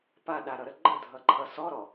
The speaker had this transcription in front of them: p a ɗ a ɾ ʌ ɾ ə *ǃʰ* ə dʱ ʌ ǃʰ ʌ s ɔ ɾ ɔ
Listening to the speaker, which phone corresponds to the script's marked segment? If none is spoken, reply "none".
ɡ͡ǃ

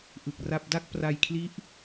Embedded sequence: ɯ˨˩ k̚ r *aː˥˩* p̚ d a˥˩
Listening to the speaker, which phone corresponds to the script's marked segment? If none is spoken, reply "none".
a˥˩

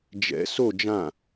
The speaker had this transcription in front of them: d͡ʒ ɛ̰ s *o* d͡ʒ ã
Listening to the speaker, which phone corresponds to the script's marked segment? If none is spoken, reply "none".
o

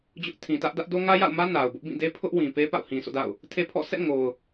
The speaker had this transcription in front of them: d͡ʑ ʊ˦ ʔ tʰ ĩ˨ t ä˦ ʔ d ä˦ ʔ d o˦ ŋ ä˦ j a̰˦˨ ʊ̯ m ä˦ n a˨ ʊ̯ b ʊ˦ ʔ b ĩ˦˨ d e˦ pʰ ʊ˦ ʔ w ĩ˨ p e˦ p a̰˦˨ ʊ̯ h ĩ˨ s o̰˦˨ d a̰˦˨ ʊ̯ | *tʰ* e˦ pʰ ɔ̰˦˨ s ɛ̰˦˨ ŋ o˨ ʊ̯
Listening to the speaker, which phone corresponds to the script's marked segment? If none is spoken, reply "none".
tʰ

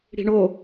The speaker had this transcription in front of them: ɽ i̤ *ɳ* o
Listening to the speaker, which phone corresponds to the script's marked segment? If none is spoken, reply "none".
ɳ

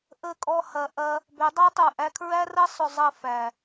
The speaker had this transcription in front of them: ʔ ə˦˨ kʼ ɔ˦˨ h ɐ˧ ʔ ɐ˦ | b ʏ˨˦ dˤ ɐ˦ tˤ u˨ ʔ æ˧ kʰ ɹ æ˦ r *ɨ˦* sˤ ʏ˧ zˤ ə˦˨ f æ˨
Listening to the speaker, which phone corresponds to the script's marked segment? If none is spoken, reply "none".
ə˦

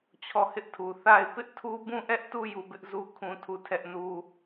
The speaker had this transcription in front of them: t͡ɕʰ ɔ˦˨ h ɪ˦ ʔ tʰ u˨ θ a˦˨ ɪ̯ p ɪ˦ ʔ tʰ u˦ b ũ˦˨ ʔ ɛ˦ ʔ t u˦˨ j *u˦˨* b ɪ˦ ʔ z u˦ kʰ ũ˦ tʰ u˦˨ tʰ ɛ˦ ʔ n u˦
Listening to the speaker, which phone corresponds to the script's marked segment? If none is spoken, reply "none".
u˦˨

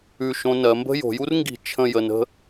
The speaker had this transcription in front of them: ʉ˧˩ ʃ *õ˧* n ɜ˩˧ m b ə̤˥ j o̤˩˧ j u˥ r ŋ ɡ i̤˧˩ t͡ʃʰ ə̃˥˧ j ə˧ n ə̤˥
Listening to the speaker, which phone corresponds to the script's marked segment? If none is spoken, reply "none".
õ˧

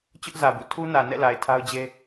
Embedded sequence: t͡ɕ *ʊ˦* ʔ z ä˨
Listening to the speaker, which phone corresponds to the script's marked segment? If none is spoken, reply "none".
ʊ˦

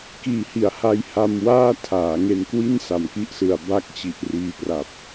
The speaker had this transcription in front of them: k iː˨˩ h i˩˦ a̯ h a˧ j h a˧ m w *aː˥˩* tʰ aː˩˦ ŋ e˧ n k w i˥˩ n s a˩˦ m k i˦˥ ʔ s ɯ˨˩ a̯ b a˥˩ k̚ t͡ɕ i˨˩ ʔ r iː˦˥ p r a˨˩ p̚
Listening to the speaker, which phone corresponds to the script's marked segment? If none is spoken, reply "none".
aː˥˩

